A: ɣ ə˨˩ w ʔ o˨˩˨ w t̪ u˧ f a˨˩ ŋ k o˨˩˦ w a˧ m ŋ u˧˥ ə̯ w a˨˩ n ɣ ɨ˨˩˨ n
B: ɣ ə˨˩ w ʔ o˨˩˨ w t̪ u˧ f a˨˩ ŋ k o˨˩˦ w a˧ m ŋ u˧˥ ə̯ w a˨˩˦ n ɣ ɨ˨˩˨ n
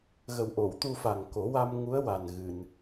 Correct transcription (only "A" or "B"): A